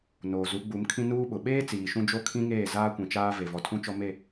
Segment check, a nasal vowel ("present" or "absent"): present